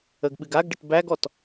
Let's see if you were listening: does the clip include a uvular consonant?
no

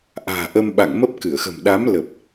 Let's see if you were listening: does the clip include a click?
no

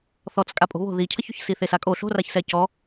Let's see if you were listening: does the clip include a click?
no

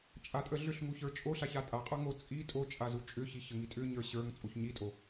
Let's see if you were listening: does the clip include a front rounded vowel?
yes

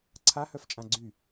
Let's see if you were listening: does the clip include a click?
yes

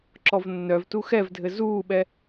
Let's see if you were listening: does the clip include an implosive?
yes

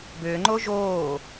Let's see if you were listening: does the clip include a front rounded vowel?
yes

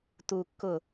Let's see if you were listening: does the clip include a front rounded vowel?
no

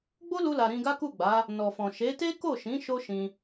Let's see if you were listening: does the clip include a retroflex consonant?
no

